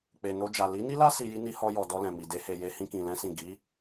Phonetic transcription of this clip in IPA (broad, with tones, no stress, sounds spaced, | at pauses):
k͡p e˨ n o˧ d͡ʒ a˨ l i˨˦ n i˦ l a˦ s i˧ j i˦ n i˧ h ɔ˧ j ɔ˨ d ɔ˧ l ɛ̃˨ m i˨ d e˧ h e˨ j e˧ h ĩ˧ k ĩ˨ l ɛ̃˧ s ĩ˨ ɡ i˨˦